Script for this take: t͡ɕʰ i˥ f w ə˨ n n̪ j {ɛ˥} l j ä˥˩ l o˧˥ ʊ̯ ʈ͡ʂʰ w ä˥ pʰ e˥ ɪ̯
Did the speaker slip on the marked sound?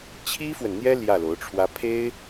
no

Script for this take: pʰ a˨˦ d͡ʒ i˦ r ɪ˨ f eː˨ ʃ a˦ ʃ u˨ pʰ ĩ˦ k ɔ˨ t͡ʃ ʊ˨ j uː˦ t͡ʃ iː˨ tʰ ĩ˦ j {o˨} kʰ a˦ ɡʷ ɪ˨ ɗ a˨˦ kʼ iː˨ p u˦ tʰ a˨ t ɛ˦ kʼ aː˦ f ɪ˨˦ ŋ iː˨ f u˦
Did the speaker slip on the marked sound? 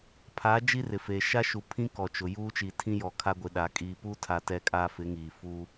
yes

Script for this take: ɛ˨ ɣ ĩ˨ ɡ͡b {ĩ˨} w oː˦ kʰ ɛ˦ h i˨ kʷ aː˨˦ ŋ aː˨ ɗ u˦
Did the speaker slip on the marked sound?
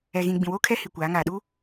no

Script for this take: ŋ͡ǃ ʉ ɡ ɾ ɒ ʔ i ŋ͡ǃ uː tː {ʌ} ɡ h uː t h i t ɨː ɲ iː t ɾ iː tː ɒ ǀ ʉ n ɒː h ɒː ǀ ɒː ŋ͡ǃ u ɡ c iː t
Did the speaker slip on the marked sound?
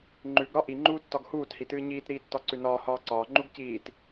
yes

